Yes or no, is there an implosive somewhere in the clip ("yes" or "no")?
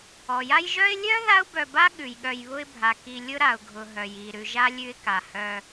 yes